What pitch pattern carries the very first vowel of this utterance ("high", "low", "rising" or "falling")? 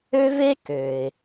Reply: high